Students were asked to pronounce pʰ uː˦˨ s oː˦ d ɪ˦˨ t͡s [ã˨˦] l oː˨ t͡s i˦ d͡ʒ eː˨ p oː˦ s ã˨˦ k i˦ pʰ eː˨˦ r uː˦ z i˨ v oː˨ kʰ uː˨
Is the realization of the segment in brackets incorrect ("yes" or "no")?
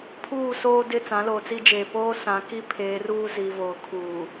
no